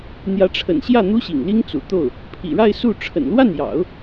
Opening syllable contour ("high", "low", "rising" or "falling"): rising